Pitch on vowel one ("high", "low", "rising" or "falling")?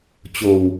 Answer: low